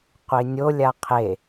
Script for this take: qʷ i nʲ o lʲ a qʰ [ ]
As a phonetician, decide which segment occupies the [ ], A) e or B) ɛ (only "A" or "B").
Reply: A